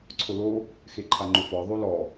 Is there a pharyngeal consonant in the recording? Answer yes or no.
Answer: no